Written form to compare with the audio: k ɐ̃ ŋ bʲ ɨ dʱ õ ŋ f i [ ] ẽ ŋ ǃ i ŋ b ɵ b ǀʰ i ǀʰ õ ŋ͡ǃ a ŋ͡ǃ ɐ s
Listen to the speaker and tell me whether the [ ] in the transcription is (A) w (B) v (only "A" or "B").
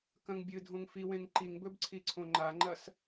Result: A